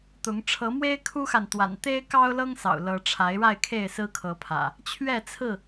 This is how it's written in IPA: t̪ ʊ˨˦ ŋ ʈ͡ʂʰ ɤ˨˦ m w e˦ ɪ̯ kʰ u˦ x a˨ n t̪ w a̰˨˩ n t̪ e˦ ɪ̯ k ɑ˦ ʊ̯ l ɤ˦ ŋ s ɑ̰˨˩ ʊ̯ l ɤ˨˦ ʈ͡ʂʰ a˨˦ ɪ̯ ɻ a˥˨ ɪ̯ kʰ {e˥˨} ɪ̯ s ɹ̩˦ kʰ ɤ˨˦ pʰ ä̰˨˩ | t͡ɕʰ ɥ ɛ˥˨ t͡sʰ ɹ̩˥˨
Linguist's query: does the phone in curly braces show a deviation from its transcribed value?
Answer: no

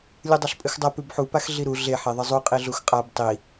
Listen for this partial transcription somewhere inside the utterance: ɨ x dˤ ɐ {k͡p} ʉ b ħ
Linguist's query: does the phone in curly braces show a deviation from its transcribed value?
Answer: yes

